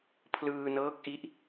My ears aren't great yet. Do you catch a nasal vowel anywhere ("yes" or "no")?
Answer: no